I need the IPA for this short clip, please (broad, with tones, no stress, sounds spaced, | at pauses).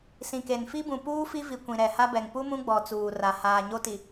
s ĩ˨ k e˨ n f i˦ b ũ˨ p uː˦ f i˦ v i˨ kʷ ĩ˨ ɾ ɛ˨ h a˦ b ɛ˨ ŋ p u˦ m ũ˦ ɡ͡b ɔ˨ t͡s uː˨ r a˨ h aː˨ ɲ o˦ t i˨